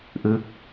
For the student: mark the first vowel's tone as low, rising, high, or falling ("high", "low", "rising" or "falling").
falling